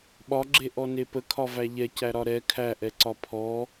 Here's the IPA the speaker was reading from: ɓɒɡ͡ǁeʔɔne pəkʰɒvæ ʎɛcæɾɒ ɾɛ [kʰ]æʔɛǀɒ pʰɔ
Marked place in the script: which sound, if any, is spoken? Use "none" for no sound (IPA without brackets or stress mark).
kʰ